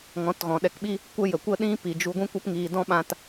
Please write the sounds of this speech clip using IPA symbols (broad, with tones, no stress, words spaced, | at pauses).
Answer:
ŋɔ̃˨˦tɣɔ̃˨ɗɛ˧kɓi˦ | kʷə˦jə˨ kʷə˦ɗĩ˦pi˨ d͡ʒu˧ɡʷĩ˦ kʷɛ˦pŋiː˧dɔ̃˦ɓã˦t